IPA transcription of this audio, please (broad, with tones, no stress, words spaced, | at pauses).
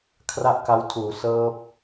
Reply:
kʰra˥˩ʔka˦˥wtʰuː˩˦ sɤː˦˥p̚